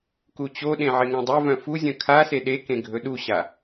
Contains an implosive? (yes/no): yes